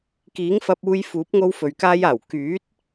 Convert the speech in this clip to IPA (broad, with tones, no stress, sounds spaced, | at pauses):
k iː˨˥ ŋ f ɐ˧ p̚ uː˧ j f uː˨˥ p̚ ŋ o˥ w f ɵ˨ ɥ k aː˥ j aː˨˩ w k yː˨˥ t̚